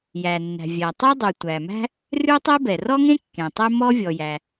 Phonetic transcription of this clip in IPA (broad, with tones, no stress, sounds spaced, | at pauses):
j æ˩ nː æ̤˩ vʲ æ˩ tˤ e˥ dˤ ʉ˩ tʷ æ˩ m æ̤˥ | r ʉ˥ tˤ e˥ b ɛ˩ r ɔ˥ ŋ ẽ˥ kː ẽ˩ tˤ ɛ˥ m ɔ˥ vʲ ɔ˩ j æ˩